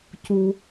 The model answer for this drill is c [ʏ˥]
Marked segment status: incorrect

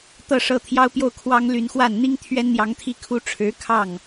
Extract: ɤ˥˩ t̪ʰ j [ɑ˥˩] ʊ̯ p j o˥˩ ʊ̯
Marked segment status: incorrect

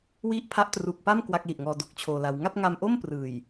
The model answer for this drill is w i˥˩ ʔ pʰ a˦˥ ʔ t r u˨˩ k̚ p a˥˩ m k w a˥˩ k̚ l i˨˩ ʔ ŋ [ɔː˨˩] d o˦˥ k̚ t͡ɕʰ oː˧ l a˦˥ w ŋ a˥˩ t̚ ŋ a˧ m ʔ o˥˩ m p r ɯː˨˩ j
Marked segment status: incorrect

